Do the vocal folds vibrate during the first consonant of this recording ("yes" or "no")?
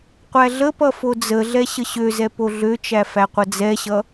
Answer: no